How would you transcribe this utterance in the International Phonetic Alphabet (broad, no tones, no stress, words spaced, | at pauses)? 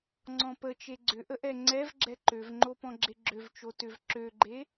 ŋ͡ǀɔ̃pə t͡ʃeɡ͡ǀʏʔəʔɛ ŋ͡ǀɛv ɡ͡ǁɛǃøvŋ͡ǃo pɔ̃ɡ͡ǁeɡ͡ǁøv t͡ʃotʏv ǁøɡ͡ǃe